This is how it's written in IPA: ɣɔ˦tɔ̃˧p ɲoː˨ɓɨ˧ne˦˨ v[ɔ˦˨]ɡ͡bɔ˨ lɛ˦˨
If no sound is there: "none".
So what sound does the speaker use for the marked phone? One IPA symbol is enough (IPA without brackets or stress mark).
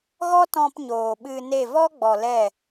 ɔ˦